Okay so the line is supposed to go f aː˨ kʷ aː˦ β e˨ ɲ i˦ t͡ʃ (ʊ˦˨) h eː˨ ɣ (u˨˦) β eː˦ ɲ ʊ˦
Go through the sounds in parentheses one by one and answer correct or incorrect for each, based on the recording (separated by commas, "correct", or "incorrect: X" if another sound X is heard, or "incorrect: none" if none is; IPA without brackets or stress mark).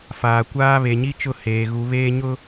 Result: correct, correct